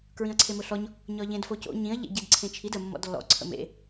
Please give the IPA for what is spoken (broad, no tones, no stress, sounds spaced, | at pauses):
k ɹ ĩ ɐ̯ ǀʰ e m ʊ ɬ ɔ ɲ | ɲ ɒ ʎ ẽ d f o c o̰ ɲ ĩ ɐ̯ ʎ ḛ ɟ i d ǀʰ ẽ t͡ʃʰ i d ə mː ɔ̰ d lː ɔ̰ ǀʰ ə̰ m ḛ